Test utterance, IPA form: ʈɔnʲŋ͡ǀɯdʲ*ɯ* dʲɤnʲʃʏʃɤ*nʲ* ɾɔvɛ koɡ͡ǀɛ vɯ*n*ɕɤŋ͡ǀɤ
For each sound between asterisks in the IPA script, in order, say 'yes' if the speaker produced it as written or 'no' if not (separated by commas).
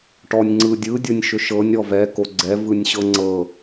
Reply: yes, yes, no